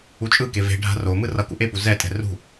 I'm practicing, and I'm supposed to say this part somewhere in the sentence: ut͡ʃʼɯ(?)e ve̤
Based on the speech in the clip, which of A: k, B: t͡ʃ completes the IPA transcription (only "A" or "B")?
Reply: A